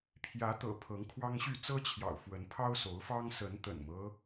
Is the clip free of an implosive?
yes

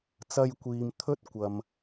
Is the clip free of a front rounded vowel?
yes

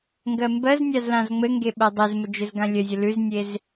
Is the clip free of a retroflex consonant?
yes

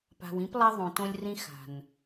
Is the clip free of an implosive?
yes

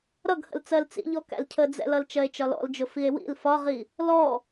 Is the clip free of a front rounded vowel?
yes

